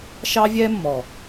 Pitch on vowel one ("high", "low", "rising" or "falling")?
high